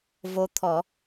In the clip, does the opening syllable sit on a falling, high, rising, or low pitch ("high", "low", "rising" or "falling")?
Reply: rising